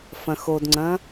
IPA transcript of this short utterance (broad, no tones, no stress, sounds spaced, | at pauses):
f ɐ̃ x o d ŋ͡ǀ ɐ̃